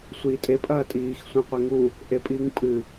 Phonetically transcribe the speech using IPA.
sʷ iː tʼ e pʼ ɐː tʼ iː x sʷ ẽ qʷ e ŋ u | ʔ e pʼ iː ŋ pʼ ɨ

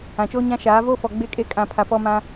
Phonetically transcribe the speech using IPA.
ã˨ t͡ʃ oː˦ ɲ ã˦ ʃ aː˨˦ v oː˦ f ɔ˨ ɡ͡b e˦ kʼ e˦˨ kʼ ã˨ pʰ a˨ p ɔ˦ m ã˦

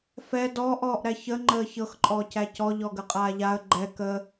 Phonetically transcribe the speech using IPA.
f ɛ d ɔː ʔ ɔː ʔ ɾ æ ç ə ŋ͡ǃ əː ç ɤ x ǃʼ ɔː c æ c ɔ ʎ ɔ ɡ ə qʼ aː ʎ a ə̯ ɡ͡ǃ ɛ k ə

